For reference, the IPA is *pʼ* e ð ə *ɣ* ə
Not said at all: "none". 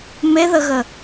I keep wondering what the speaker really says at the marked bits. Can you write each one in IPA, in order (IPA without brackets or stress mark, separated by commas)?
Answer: m, ɣ